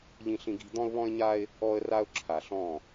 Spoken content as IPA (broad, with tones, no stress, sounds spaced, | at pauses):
ʎ ĩ˦ ɬ ĩ˦ ɡ i̤˦ d̪ ɔ̃˦ ʊ̯ β ɔ̃˦ ɪ̯ ɲ a˦ ɪ̯ | ɔ˦ ə̯ r a˦ ʊ̯ ǁʰ a˨ ɬ ɔ̃˦˨